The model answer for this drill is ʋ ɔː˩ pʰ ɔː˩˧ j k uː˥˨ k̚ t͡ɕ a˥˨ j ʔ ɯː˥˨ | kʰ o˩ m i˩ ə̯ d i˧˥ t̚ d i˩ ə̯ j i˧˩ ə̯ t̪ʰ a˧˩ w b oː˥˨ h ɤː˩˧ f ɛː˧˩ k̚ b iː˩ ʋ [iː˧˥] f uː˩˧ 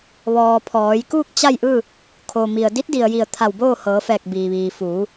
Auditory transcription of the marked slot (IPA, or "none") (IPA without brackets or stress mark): iː˩